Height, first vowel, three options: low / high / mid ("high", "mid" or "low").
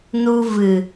high